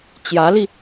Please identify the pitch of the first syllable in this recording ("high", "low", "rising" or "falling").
rising